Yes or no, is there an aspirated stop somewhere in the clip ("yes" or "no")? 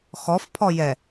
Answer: yes